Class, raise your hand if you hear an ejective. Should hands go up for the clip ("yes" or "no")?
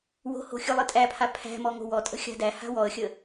yes